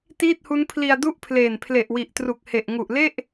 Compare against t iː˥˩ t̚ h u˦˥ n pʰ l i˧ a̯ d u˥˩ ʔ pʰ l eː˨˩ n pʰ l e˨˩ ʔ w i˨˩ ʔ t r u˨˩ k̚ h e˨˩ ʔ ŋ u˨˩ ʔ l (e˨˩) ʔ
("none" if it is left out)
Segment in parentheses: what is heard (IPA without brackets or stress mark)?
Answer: e˥˩